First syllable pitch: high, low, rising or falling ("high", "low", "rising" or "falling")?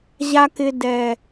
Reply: low